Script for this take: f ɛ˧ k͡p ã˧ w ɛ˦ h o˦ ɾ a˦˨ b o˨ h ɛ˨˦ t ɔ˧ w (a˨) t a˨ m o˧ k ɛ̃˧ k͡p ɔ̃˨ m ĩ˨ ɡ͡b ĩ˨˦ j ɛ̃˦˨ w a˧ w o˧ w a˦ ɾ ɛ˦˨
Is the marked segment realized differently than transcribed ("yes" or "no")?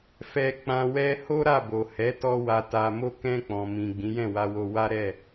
no